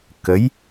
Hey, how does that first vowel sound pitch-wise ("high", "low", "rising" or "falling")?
rising